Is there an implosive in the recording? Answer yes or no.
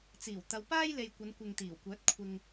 no